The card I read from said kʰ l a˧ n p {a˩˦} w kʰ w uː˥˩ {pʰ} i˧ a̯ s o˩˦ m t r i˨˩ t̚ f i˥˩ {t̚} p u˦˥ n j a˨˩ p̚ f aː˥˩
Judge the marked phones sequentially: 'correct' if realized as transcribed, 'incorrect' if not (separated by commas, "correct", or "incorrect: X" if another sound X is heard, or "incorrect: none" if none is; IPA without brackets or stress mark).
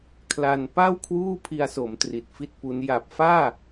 incorrect: a˥˩, correct, correct